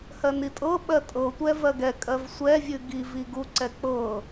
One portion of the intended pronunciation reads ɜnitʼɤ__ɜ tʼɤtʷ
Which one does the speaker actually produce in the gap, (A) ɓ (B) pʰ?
A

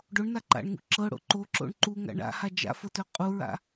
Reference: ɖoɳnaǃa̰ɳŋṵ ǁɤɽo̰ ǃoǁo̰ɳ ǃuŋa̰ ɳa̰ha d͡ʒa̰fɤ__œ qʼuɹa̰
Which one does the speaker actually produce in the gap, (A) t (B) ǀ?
A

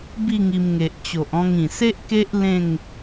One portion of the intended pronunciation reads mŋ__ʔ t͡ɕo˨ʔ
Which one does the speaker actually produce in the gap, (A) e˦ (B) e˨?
B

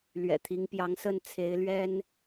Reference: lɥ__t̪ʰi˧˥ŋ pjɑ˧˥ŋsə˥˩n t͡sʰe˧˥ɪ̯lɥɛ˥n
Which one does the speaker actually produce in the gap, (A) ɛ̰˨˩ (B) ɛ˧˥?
A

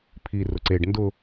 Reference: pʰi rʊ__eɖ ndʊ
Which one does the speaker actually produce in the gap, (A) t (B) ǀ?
B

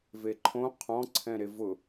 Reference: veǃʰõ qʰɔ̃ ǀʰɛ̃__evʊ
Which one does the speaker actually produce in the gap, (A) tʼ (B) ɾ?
B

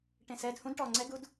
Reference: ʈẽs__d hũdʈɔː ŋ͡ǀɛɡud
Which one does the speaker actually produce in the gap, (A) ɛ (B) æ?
A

